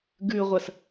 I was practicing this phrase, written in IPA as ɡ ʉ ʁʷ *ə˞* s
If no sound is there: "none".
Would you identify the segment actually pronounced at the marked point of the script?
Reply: ɐ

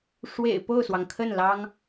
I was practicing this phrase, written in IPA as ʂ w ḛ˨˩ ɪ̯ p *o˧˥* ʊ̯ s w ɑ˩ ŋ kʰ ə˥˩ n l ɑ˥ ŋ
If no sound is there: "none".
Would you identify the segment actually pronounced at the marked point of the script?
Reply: o˥˩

